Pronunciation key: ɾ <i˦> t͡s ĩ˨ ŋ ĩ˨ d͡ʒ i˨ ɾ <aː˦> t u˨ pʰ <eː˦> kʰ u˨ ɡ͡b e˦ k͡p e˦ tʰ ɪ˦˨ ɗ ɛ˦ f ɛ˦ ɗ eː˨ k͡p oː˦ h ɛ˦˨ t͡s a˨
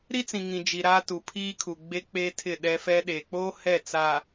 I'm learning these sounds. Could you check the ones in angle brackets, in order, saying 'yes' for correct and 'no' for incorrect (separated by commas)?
yes, yes, no